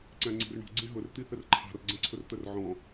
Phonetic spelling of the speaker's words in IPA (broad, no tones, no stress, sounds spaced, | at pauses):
ǀ æ̃ ŋ͡ǀ i̤ r ɳ ṳ ɡ͡ǀ ĩ ɦ ʊ r t̪ i θ ə r ǃʰ ɑ̤ r ɡ͡ǀ ə̃ ǀʰ ʊ r t̪ ə r ʕ ɔ̃